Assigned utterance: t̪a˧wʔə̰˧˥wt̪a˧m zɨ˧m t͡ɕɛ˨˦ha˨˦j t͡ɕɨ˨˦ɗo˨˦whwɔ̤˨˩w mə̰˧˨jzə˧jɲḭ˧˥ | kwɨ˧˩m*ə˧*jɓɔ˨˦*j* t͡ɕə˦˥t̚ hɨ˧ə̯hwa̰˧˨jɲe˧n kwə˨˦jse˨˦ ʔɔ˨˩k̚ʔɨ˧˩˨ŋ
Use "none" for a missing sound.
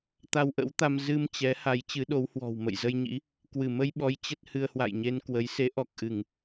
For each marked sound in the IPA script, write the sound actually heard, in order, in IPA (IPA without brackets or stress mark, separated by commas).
ə˧, j